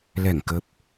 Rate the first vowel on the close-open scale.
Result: mid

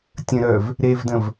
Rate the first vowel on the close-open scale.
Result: mid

